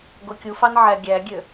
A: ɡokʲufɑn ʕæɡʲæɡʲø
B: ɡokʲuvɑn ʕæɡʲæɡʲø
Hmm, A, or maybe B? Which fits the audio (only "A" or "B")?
A